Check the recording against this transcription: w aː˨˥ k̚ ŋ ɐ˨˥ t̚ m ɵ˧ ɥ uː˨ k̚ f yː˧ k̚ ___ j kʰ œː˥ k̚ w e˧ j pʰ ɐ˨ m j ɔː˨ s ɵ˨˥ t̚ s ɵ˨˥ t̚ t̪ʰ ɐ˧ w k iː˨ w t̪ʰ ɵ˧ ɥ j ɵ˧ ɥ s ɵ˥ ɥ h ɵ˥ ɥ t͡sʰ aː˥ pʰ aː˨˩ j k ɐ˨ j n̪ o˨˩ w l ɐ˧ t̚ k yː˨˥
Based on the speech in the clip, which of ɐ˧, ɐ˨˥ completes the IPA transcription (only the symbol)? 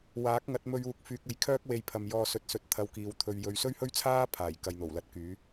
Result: ɐ˧